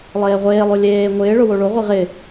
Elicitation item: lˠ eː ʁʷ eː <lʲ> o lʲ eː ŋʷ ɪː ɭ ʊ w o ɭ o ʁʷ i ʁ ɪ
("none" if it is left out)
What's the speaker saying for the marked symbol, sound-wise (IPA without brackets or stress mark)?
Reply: lˠ